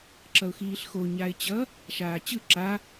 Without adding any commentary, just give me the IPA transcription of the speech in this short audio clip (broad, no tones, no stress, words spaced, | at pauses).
ǁʌʊ̯xiːɬxo ɲaɪ̯t͡ɕʌ | ʃaːt͡ɕɯ ǁa